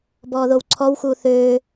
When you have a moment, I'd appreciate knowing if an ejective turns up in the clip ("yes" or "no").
no